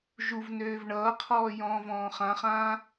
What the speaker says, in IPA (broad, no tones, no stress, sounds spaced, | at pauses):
ʒ u v n øː v ɳ ʌː qʰ ɔː j ɔ̃ː v ɔ̃ː χ ã χ ãː